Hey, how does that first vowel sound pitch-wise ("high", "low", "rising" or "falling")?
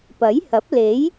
rising